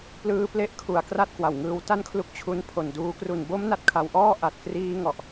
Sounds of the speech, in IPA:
p l ɯː˦˥ p l e˦˥ ʔ kʰ u˨˩ a̯ k r a˥˩ t̚ k w a˨˩ w ŋ ɯː˧ w t a˥˩ n kʰ l u˦˥ k̚ t͡ɕʰ u˧ n pʰ o˨˩ n d uː˧ k r u˨˩ n b o˦˥ m n a˦˥ t̚ kʰ a˧ w ʔ ɔː˥˩ ʔ a˨˩ t̚ k r iː˧ ŋ ɔ˨˩ ʔ

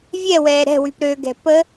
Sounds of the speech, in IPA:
vʲ ɛ w ɛː ɾ ɛ̤ w y p ɾ ø ɡ ɛ̤ p ə

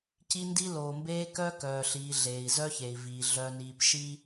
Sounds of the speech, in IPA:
c i˦ n d i˦ l oː˨ m b eː˦ k œ˦ k œː˨ ɬ iː˨ ɮ eː˨ i̯ z œ˦ ç e˨ i̯ v iː˨ ɮ œ˨ n iː˨ p ʃ i˦

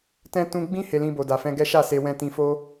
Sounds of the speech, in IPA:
t ɛ̃˦ t ũ˧ ɡ͡b ĩ˦ h e˧ l ĩ˧ b o˨ d a˨ f ɛ̃˧ ɡ ɛ˦ ʃ a˦˨ s e˧ w ɛ̃˧ t ĩ˧ f o˦

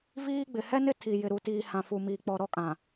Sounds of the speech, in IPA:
v iː˦ ɡ͡b ɪ˨ h ɛ˦ n ɪ˦ tʰ i˨ j ɪ˨ ɾ u˨ t iː˨ h ã˨ f u˨ m iː˨ k͡p ɔ˨ ɾ ɔ˦˨ kʼ ã˨

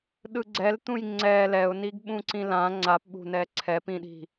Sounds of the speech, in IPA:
ɗ ɯ ɡ͡ǀ ɛ l t̪ ũ j ŋ͡ǀ ɛ l ɛ ʊ̯ n i ɡ ɓ ũ ǀ ĩ l ã ŋ͡ǀ a p ɓ ṳ n ɛ ǀʰ ɛ p ĩ ɗ i̤

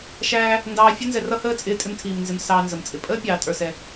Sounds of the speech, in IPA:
ʃ æː˧ | n d ɑː˧ fʲ ə˥ n z ɛ˧ r ʌ˥ h əː˥ t͡sʼ ɪː˧ tʼ ɪ˧ m tʰ iː˩ m n z ɪ˩ m s ɑː˧ n z ə˩ m t͡sʼ ɪ˩ pʼ əː˥ pʲ ɑː˩ tʼ ə˞˩ s ɛ˩

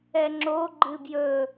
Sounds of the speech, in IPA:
ɛ ŋ͡ǁ o ɡ͡ǃ ɨ b j ɵ

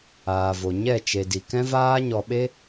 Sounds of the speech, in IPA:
aː˨ v o˨ ɲ ɛ˦˨ t͡ʃ e˨ d i˨ k ɛ̃˦ v aː˦ ɲ ɔ˧ ɓ e˦

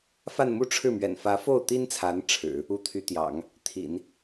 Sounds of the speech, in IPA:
f a˥˧ n m u˥˧ ʈ͡ʂʰ ɻ̩˥˩ m ɥ ɛ̰˨˩ n f ä˧˥ f o˥˩ ʊ̯ t̪ i˥ n t͡sʰ a˧˥ n ʈ͡ʂʰ ɻ̩˨˩˦ | u˧˥ t̪ʰ y˧˥ t̪ j ɑ̰˨˩˦ ŋ | t̪ʰ ḭ˨˩˦ n

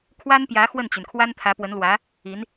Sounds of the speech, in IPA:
kʰ w a˥ n p j ä˧˥ x w ə˥˩ n t͡ɕ y˩ n kʰ w a˥ n t̪ʰ ä˧˥ p w ə˧˥ n l w ä˧˥ | i˧˥ n

